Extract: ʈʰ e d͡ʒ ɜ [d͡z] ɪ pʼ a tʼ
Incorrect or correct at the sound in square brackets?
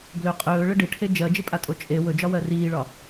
incorrect: d͡ʒ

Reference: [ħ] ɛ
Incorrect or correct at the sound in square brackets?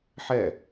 correct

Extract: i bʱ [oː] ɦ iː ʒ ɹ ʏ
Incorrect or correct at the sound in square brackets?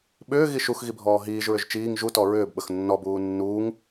incorrect: ɔː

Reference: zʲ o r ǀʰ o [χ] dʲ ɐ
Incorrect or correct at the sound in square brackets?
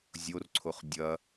correct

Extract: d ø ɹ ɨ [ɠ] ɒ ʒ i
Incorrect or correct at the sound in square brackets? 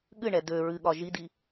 correct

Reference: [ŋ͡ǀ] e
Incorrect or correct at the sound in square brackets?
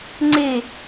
correct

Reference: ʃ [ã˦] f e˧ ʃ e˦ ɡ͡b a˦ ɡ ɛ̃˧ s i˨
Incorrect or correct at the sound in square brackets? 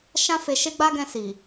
correct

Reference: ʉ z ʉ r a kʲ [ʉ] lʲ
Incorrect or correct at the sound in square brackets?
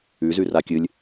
incorrect: ɨ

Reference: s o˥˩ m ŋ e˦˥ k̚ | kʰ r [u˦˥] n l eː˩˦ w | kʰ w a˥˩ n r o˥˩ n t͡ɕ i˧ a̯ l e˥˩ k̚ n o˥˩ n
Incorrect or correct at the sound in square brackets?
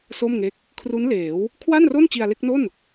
correct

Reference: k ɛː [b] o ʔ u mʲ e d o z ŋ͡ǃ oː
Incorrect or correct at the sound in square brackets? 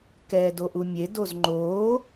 incorrect: d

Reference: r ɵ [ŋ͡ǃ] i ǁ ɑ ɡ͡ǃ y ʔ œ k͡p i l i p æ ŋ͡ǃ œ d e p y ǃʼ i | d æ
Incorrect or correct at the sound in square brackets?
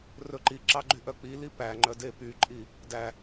incorrect: ǃ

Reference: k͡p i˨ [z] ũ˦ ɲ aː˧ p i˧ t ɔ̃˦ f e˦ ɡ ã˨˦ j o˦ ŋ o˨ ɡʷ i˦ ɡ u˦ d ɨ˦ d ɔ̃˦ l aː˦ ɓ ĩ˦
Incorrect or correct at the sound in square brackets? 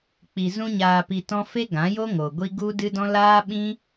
correct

